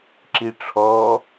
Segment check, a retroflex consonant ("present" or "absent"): present